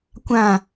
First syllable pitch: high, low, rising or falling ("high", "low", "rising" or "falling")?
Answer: falling